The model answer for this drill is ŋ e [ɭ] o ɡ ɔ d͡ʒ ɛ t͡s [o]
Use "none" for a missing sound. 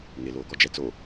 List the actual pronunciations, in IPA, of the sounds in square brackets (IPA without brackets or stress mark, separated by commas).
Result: l, o